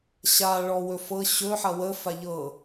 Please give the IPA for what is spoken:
ɕa ɭɔwɵfɤ ɕɵ ħɐwə faʎɤ

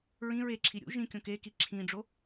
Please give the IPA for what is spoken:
ɹĩ ɹeǁʰi ɾʲṵ ʒĩ kʲõkeki ǁʰĩɖ͡ʐo

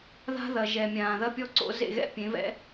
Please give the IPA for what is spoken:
ða̤˦ðɐ˨ ʒɛ˨mʲãː˨ ðɐ˦pʲɔ˦ǀo̰˨˦ zḛ˨ ɣɛ̰˦ pʲẽ˨˦vɛ̰˦

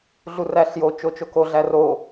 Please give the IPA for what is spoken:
ɮuræɬjo t͡ʃot͡ʃoko ɮæro

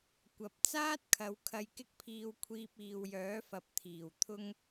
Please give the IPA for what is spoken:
kʷɐ˨p̚ t͡saː˥t̚kʰɐ˨˧w kʰɐ˧jkɪ˥k̚pʰiː˧wkʷʰiː˧p̚ iː˨wjœː˨˥fɐ˨p̚t̪ʰiː˨˩w t̪ʰʊ˧ŋ

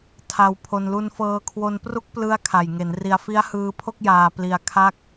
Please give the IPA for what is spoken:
tʰa˧wpʰo˧n lu˧nfɤː˧kʰwo˧npru˦˥k̚ plɯ˦˥a̯ kʰa˨˩jŋe˩˦nri˧a̯ fi˦˥a̯hɯː˧pʰo˥˩k̚jaː˨˩ pli˧a̯kʰa˥˩k̚

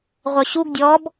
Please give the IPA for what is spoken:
ʁʷœɕuɡ dʲɔb

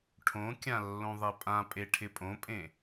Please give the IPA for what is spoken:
ʈʰõkʲã lːõðˤepʼãpʼe ʈʰɪpʼõpʼẽ

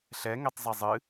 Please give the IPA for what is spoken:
ɬɛŋetˤ zˤɛzˤɨ

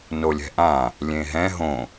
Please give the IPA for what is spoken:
nolʲɛ̤ʔã | lʲẽɦɛ̃ ɦõ

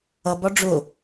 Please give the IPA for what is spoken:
ʌbɒ ɖ͡ʐʊ

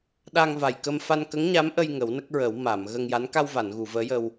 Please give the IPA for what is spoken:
ɗa˧ŋva˨˩jkə˧m fa˧nkə˧˥ŋɲa˧˥mʔə˧j ŋə˨˩˦wnə˦˥k̚ɹə˨˩˦w ma˨˩˨m ɣə˧ŋja˧˥n ka˧wva˨˩˨nɣu˨˩˨ vəː˧˥jə˧w

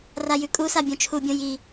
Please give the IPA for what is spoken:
rajʉkʼusa bʲõt͡ʃʰubʲõ ji

